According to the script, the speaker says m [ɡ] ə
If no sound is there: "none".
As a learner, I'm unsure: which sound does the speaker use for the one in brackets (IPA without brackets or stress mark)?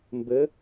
b